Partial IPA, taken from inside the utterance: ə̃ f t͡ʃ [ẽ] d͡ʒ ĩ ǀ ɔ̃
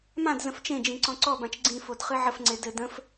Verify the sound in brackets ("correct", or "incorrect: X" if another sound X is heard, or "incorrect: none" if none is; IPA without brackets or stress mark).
correct